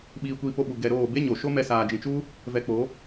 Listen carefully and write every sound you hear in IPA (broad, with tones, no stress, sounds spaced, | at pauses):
ɓ iː˧ kʷ iː˧ p o˧ ɓ u˨ ɡ ɛ˧ ɾ oː˦˨ b e˦ ɲ o˨ ʃ o˦ m ɛ˧ s aː˨ d͡ʒ ĩ˨ t͡ʃ u˦ | v ɛ˧ k͡p o˨˦